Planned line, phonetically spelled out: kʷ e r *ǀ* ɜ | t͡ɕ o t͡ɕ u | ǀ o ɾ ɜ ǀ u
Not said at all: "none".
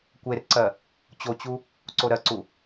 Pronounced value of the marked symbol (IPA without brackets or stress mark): ǀ